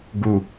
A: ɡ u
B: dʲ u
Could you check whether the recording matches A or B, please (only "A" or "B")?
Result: A